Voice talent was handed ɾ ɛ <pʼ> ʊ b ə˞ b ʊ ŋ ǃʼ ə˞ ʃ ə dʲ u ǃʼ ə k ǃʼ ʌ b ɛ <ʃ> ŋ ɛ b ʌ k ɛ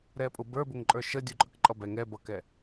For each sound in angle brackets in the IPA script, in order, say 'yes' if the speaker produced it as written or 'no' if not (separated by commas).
yes, no